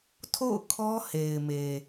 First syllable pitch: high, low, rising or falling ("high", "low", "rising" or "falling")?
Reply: falling